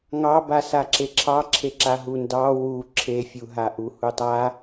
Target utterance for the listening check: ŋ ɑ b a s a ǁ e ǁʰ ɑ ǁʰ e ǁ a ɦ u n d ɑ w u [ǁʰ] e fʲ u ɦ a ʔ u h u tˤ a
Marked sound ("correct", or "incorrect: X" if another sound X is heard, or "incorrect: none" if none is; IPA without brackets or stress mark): correct